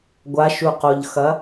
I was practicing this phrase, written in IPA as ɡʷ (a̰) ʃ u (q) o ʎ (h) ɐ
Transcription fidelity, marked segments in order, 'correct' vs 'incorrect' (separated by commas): incorrect, correct, incorrect